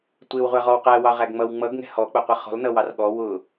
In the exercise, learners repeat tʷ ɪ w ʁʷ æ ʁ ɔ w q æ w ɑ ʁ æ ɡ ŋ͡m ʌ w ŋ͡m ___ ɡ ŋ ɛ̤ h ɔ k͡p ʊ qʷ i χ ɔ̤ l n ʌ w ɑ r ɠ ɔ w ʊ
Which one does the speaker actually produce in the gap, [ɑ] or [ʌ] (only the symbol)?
ʌ